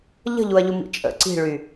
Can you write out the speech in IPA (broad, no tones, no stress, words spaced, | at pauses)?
ʎə̤ʎuɐ̯ʎumḭ t͡ʃʼə̰ ǀi̤ɭy